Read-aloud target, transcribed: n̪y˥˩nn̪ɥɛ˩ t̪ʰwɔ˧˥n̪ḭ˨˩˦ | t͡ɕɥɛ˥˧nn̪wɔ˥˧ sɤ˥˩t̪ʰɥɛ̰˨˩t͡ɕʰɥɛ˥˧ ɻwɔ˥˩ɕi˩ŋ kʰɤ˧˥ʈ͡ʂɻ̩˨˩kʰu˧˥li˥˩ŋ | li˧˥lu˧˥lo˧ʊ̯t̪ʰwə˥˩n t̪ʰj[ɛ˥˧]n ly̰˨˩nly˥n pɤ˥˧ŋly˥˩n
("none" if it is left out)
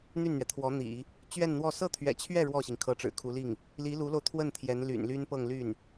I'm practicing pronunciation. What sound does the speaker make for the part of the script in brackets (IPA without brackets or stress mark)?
ɛ˧˥